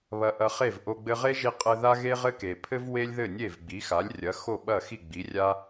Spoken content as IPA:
β ɐ˧ ʔ ɐ˧ χ e˥˩ v ʔ o˧ ɡ͡b ɘ˧ ʁ e˥ ʒ i˧ qʼ ɘ˧ ð a˥ ɣ e˥ ʁ ɘ˥ k e˩ pʰ ɘ˥ v w e˥ lʲ ð ɘ˥˩ nʲ e˥˩ v ɡ͡b i˩˥ x a˩˥ lʲ rʲ ɐ˩˥ x o˥˩ ɓ ɐ˥˩ x i˥˩ ɡ͡b i˩˥ rʲ a˥

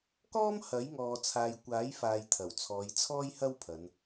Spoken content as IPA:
k ɔː˥ m h ɐ˨˥ j ŋ ɔː˨ t͡sʰ aː˨ j kʷ aː˨˥ j f aː˨ j t̪ʰ ɐ˨˩ w t͡sʰ ɔː˨˧ j t͡sʰ ɔː˥ j h ɐ˥ w pʰ ɐ˨˧ n

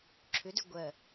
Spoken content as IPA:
ǁʰ ʏ d ʏ ɡʷ ɜ

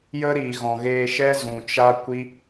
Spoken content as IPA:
j ə˦ ɾ i˨ ɣ ɔ̃˨ ɣ eː˧ ʃ ɛ˦ z ũ˨ t͡ʃ a˦ kʷ i˦

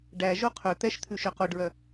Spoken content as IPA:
ɖ æ ʒ o qʰ ɵ t̪ ɛ ʃ t̪ʰ ʉ ʃ œ q o ɖ ɹ œ

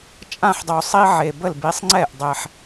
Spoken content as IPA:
t͡ʃʼ ã˥˩ ħ dˤ o˨˩ sˤ i˦ ʕ e˨˩ b ə˥˩ l b i˨˥ sˤ ŋ͡ǀ ɛ˥˩ ʔ dˤ ɛ˨˩ ħ

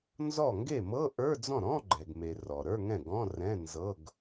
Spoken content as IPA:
n z ɔ˥˩ ŋ ɡ e˥˩ m ɤ˧˥˧ ʔ ə˞˧˥˧ d͡z ɔ̃˥˩ ɾ ɔ̃˧˥˧ ɡ͡ǃ ɛ˩ ɡ m e˩ r ɔ˩ ɾ ə˞˧˥˧ ŋ ɛ̃˥˩ ɡ ɔ̃˧˥˧ r ɛ̃˧˥˧ n z ɤ˧˥˧ ɡ

